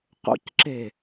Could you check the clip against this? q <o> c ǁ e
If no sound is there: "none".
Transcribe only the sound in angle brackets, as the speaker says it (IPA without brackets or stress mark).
o̰